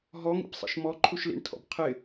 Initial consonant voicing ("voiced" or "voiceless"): voiced